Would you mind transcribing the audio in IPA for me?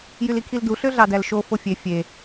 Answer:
jylikʰildu ɬøɮɑdælʃo fofʲe fʲe

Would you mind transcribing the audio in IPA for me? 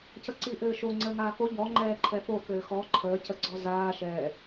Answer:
cəǀiʔɘːʃo ŋ͡ǀəːŋaːko ʎɔ ŋ͡ǃɛːǃʰɛfo kɘːxɔ ǃʰəː cəɡ͡ǀɔzaː ʃɛː

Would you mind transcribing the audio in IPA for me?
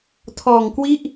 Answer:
tʰɔː˧ŋkwi˥˩ʔ

